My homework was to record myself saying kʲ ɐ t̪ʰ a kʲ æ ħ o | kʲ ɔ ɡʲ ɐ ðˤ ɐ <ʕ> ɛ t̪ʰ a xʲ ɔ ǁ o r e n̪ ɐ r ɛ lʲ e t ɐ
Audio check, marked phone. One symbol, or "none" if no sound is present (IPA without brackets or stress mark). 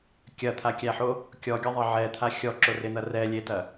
ʕ